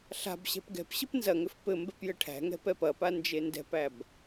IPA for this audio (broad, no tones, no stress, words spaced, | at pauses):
ɬa̤b ɕɛ̤pɡɛ̤pɕɘp nzɐŋʏf pɘ mbɛpjɘʈʰæ̤ŋɛ̤ pɛpɐpa nd͡ʒendɛ̤pæb